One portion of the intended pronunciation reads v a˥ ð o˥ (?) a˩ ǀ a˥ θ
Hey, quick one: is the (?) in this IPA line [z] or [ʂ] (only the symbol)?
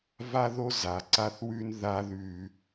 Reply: z